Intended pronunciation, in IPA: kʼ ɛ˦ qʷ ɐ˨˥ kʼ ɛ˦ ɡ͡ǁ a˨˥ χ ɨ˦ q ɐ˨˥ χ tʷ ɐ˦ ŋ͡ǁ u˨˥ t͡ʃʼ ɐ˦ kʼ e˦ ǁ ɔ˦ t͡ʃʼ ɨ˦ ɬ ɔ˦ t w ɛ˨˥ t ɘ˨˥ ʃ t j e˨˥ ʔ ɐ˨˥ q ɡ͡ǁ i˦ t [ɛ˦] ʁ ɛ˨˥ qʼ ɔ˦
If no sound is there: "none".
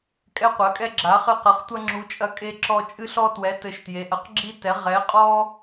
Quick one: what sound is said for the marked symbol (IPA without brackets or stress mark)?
ɛ˨˥